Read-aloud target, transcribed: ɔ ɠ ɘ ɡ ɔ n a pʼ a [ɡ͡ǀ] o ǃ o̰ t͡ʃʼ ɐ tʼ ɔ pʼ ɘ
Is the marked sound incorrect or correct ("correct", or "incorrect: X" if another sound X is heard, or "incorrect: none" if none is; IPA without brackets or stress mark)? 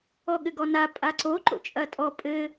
incorrect: ǀ